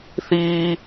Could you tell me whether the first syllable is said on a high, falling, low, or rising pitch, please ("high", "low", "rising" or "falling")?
high